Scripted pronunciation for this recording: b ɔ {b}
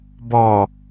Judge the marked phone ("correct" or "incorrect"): incorrect